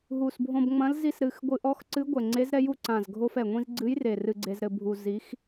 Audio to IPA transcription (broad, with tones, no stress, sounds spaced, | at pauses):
ɦ u˨˩ s bʱ õ˧ b ŋ͡m ɐ̃˧˥ l z i˧ s ɾ ɨ˨˩ x ɡʷ ɨ˧ ʔ ɔ˧˥ x ǀ ɨ˧˥ ɡʷ ɛ˨˩ ŋ͡ǀ e˧˥ z ɾ ɛ˧˥ j u˧ ǀ ã˨˩ z ɡʱ o˧ f ɛ˨˩ ŋʷ ĩ˧ z ɡ͡ǀ ɨ˧˥ j r e˨˩ r ɨ˧ ɡ͡ǀ e˧ z ɾ ɘ˧ bʱ u˧ z i˧˥ x